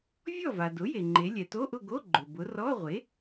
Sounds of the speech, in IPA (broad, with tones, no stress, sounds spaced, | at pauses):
vʲ ɔ˥˨ v a˩ d ʊ˩˥ j e˩ ŋ͡ǃ e˩˧ lʲ ɛ˩ t o˧˥˧ ʔ ʊ˥˨ ɡ o˧˥˧ ɡ͡ǃ ʊ˩ b ʊ˩˧ r ɔ˧˥˧ ʁʷ e˩˥